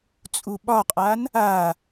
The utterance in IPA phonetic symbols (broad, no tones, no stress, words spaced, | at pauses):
t͡sʼuɓɒqʼan | a